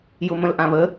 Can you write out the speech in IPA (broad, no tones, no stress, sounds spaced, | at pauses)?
j ʊ m ə̃ l ʔ ã β ə